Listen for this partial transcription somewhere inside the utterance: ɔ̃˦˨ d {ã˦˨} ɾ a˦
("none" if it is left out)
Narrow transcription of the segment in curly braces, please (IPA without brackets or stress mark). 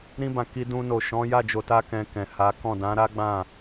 ã˨˦